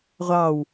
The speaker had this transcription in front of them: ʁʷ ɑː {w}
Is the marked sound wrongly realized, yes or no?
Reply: no